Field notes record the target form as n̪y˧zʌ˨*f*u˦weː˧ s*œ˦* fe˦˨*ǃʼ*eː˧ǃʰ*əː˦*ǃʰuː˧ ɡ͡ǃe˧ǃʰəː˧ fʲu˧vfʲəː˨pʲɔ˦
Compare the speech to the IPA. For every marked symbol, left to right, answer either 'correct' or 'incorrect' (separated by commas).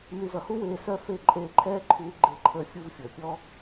incorrect, correct, correct, incorrect